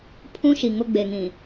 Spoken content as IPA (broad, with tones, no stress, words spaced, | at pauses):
pʰũ˦ʃi˨ ŋʊ˦ ɡ͡be˨ŋĩ˨